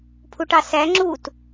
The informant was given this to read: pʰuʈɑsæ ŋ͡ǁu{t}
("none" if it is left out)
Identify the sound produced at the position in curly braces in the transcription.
t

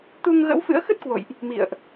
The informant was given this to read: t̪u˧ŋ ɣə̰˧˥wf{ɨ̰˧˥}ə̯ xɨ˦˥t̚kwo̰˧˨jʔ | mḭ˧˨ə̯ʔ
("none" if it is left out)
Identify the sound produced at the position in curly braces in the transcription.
ɨ̰˧˥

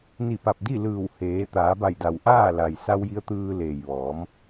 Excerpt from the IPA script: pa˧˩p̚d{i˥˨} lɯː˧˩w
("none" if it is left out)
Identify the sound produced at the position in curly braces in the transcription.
i˥˨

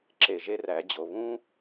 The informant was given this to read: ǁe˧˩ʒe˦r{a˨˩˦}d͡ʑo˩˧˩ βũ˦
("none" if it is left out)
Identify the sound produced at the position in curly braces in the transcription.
æ˨˩˦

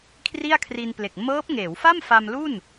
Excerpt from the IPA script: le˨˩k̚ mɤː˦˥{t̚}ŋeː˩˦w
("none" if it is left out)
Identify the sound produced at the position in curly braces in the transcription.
p̚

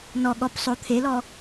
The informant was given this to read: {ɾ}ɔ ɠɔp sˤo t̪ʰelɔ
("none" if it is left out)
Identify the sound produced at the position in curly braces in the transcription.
n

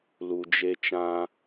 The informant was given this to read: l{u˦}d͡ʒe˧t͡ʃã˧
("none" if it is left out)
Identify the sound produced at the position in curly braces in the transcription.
u˨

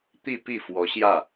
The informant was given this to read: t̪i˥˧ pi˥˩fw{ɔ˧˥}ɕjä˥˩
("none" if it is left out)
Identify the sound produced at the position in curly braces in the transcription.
ɔ˧˥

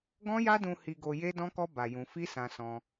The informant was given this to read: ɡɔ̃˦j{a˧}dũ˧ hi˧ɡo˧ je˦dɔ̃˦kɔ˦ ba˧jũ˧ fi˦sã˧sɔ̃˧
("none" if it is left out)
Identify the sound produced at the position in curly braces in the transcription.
a˦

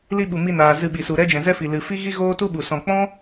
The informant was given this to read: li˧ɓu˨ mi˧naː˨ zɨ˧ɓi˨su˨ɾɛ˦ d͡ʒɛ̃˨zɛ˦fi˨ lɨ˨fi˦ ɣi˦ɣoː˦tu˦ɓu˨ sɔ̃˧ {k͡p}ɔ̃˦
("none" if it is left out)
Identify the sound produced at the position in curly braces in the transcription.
k͡p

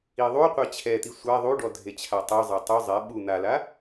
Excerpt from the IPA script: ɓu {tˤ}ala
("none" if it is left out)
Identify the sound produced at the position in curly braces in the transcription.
n̪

